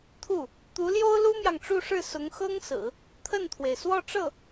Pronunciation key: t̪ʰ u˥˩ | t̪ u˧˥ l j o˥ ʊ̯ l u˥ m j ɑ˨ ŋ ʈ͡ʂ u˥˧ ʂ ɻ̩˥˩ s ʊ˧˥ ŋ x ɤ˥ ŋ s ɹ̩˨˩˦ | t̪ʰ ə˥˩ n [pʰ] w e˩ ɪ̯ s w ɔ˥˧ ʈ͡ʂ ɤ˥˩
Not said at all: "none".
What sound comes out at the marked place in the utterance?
t̪ʰ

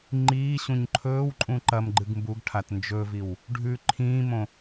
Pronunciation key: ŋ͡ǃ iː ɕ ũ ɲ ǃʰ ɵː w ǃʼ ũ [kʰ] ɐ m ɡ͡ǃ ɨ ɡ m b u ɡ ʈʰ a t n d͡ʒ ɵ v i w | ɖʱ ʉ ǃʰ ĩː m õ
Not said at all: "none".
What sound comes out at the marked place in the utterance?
ǃ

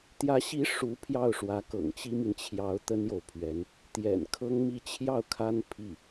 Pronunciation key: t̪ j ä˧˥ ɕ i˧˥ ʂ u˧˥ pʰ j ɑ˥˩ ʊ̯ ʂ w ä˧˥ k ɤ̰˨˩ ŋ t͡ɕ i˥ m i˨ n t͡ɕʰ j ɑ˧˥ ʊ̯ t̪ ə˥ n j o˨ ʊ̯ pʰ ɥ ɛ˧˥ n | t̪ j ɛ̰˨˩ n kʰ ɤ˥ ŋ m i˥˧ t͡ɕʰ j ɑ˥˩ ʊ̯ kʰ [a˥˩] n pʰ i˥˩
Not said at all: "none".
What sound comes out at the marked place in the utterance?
a˥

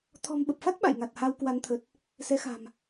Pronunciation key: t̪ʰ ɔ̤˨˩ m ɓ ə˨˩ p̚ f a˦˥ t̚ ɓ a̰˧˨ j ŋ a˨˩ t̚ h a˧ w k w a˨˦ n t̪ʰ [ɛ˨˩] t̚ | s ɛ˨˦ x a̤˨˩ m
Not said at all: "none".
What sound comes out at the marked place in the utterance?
ə˨˩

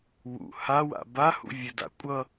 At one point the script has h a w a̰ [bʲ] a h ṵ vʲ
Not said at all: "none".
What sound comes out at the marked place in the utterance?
b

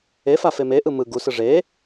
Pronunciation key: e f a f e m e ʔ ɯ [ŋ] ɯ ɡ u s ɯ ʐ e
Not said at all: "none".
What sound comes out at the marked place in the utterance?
m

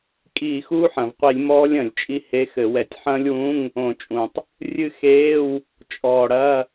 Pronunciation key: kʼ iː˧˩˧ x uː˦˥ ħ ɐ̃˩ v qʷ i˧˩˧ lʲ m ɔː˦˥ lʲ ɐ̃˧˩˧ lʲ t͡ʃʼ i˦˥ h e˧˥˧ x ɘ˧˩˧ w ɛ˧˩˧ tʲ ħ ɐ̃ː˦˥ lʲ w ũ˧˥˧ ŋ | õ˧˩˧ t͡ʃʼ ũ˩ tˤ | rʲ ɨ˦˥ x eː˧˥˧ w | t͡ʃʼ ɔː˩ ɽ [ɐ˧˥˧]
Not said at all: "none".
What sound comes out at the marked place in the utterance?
ɐ˧˥˧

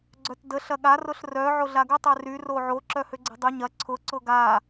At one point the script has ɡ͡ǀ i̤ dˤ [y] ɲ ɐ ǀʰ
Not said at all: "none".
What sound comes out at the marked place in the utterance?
y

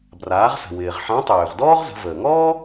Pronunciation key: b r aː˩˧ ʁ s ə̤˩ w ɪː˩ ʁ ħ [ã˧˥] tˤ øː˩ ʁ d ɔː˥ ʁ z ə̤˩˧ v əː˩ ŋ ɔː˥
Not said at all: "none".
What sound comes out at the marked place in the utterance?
ã˧˥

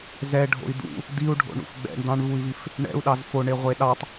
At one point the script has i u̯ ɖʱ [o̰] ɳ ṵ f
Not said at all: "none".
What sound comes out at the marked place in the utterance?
o̰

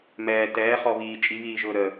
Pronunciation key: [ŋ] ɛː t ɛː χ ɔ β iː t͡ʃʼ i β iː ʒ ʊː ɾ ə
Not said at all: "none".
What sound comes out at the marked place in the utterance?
m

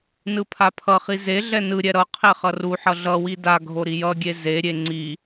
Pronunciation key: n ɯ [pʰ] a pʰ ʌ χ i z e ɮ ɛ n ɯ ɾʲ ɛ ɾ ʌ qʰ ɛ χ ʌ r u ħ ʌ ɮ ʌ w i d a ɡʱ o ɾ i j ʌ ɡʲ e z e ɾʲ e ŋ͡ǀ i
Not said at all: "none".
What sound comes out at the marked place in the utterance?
pʰ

